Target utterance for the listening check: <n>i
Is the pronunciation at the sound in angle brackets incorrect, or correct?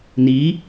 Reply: correct